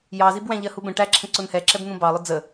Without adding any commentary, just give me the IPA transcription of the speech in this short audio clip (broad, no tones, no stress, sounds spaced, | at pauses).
j ɑ z i b w æ̃ ʎ ɜ h u b ə̃ ʈ æ ǁʰ ə̃ ǀ ʊ n h ɛ ǁ ɛ b n̪ ũ b ɑ lˠ ʊ d͡z ə